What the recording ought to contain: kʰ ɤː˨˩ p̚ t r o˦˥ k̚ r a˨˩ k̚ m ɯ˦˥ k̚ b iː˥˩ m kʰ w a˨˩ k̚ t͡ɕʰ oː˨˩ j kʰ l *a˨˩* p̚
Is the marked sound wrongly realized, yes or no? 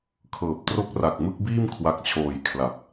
no